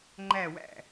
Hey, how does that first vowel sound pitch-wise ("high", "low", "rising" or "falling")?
falling